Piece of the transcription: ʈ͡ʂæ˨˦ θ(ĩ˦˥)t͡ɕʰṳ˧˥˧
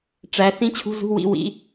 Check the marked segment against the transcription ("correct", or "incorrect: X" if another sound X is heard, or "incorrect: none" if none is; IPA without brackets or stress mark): correct